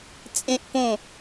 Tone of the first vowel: high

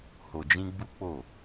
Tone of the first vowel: low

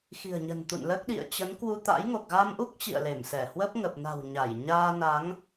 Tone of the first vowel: low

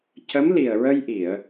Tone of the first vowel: rising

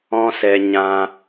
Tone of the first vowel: high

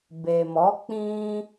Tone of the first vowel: low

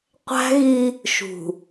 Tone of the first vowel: high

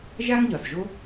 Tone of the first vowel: high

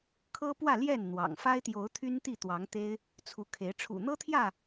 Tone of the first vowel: high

